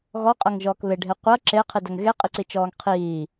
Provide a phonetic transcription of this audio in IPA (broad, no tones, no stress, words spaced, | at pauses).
ɣɔqʼɐŋʒɔːk βeɖʱe qʷɐ ǁeqʰidɐŋ ɣeqʼiǀit͡ʃɔːŋ qʰiː